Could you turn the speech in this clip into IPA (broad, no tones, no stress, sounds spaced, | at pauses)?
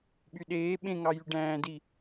ɓ y ɗ eː ɓ ẽ ŋ ɑ j y ɖ æ̃ː d i